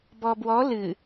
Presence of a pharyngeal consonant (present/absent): absent